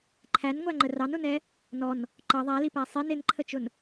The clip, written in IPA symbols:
ǃʰ æ n ŋʷ æ ŋ͡ǃ ə r ɑ n ʊ n ɛ | n ɔ n | ǃ ʌ ðˤ æ l i p æ sˤ i n ɪ n ǃʰ ə t͡ʃ ʊ n

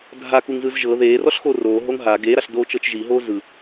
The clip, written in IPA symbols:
dʱ a k u ŋ z ɯ z ʒ ɤ ð eː r ɔ ɬ x o r oː ɦ o ŋ ɦ a ɡ eː ɾ a ɬ d oː t͡ʃ ɤ t͡ʃ ʒ i ɦ oː z ɯ

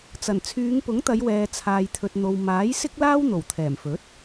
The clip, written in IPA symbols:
t͡s ɐ˨˩ n t͡sʰ yː˨˧ ŋ p ʊ˨˥ ŋ t̪ ɐ˨˧ j w ɛː˨ t͡sʰ aː˨ j t̪ʰ ɵ˨ t̚ n̪ o˨ w m aː˨˥ j s ɪ˥ k̚ l aː˥ w n̪ o˨˩ w t̪ʰ ɛː˨˩ m f ɵ˨˥ t̚

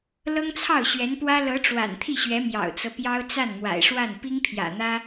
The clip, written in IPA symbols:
l ɤ˥ ŋ t͡sʰ ɑ˥˩ ʊ̯ ɕ ɥ ɛ˧˥ n p w ä˥ l ɤ˧˥ ʈ͡ʂ w a̰˨˩ n t̪ʰ i˥˩ ɕ ɥ ɛ˧˥ m j ɑ̰˨˩ ʊ̯ t͡s ɤ˦ p j ɑ˥ ʊ̯ t͡s a˥˩ n m w a̰˨˩ ɪ̯ ʂ w a˥˩ n p i˥ ŋ pʰ j ä̰˨˩ n̪ ä˥

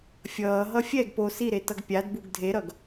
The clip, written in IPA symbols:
fʲ ʌː ɦ ʌ fʲ ɛ ɡ p o s i ɾ e t ʌ ɡ pʲ a d b u ɡ dʱ e ɾ ʌ ɡ

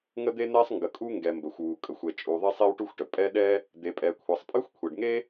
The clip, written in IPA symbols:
ŋ ə˥ d̪ e˥ n̪ ɛ˥ sˤ ŋ ɡ ə˩ kʼ u˥ ŋ ɡ ɛ˩ m b ə˩ xʷ w u˩ kʼ ə˩ xʷ ɛ˩ t͡ʃʼ u˩ ðˤ e˥ sˤ e˥ w ʈ u˥ xʷ ʈ ə˩ pʼ ɛ˥ ɗ ɛ˥ | d̪ e˩ pʼ ɛ˩ kʷʰ ɛ˩ sˤ pʼ ɨ˥ xʷ kʷʰ e˩ ɖ ŋ e˥

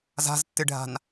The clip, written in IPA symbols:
z a̤ z tː ɨ ɖʱ a̤ n

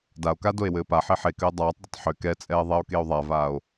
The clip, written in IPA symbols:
d a o̯ k a d o e̯ w ɘː p a ħ e ħ e k ɘ e̯ dˤ aː tˤ d ʏ tˤ ħ ʏ k ɛ t͡sʼ ɛː ðˤ ɛ o̯ k e o̯ ðˤ a v aː o̯

